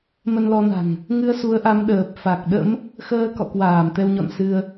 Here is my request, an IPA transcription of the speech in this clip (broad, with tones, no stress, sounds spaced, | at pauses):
m ə˧ n l ɔ˧ n a̤˨˩ ŋ | ŋ ɨ˧ ə̯ s u˨˦ ə̯ ʔ a˨˦ m ɗ əː˨˩ p̚ f a˨˩ k̚ ɗ ə̰˧˥ m | x əː˧ k ɔ̰˧˨ k w aː˧˩ m t̪ ɛ˧ w ɲ ɔ̰˧˨ n s ɨ˧ ə̯